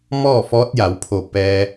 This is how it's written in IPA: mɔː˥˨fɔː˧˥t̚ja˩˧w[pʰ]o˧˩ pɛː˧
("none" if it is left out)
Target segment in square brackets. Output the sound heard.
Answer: pʰ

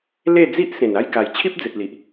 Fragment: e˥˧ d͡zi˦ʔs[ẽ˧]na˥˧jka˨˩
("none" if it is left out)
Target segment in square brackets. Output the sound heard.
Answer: ẽ˨˩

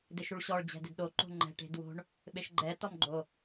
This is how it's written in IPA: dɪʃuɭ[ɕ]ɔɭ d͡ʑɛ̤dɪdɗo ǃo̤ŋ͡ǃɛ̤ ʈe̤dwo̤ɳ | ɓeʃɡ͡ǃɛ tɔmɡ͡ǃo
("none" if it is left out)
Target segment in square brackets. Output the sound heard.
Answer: ɕ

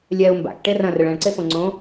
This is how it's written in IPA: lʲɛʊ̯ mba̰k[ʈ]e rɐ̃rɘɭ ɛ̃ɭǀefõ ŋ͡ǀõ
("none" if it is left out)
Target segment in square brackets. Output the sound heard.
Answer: ʈ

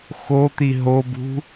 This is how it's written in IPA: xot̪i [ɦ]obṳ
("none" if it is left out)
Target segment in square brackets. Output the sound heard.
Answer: ɦ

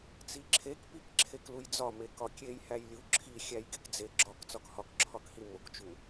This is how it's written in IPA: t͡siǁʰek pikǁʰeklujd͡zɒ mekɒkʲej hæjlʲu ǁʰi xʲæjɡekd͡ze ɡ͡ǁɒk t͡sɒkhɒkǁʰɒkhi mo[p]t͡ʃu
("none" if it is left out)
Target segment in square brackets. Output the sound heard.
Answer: k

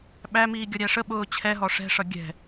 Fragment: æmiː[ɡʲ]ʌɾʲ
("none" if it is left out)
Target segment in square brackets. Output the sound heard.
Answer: ɡʲ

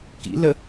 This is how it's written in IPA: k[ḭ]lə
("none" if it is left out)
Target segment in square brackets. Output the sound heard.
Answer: ḭ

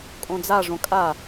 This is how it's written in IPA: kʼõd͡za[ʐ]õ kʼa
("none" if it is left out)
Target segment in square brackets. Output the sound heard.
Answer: ʐ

